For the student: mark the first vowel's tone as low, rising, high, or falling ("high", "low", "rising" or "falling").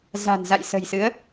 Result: low